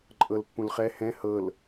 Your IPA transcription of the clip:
ǃʼ ɤ l pː ũ l χ ɛ h ɛ̃ h ɤ l

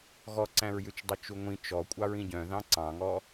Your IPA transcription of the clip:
ɣ ɔ ǀ æ̃ ɹ j ʉ t͡ʃ dˤ œ t͡ʃ u ŋʷ ĩ t͡ʃ ɔ kʷʼ ɑ ɹ ĩ ɟ œ̃ ð ɑ̃ ǀ ɑ̃ ŋ ɔ

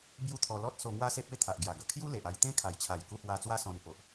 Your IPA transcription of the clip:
b j u˦ t̪ʰ ɔ˧ l ɔ˦ t̚ s o˧ ŋ w a˦ s e˦ p̚ e˥˧ t̪ʰ a˨ ʔ ɡ j a˨˩ ɡ ə˨˩ kʰ j u˦ l e˨ ʔ a˧ j t̪ ẽ˦ kʰ a˨˩ j t͡ɕʰ a˨˩ j k u˧ h w a˧ t͡s w a˦ s ɔ̃˧ n p o˨ ʔ

